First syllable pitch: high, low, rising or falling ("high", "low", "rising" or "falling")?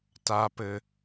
high